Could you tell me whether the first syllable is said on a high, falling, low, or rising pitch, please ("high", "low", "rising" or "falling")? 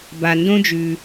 low